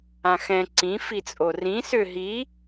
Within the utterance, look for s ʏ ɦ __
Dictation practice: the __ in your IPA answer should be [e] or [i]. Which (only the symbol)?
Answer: i